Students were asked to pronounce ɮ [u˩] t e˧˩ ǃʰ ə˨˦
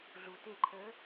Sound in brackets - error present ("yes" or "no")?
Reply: no